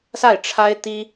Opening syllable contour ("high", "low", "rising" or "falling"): falling